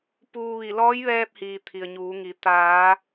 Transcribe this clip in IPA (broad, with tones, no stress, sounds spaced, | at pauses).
p uː˧ ʋ i˧˩ l ɔː˧˥ j ʋ ɛː˧ p̚ h iː˩ t̪ʰ i˩ ə̯ ɲ uː˩˧ ŋ i˩˧ t̪ aː˩˧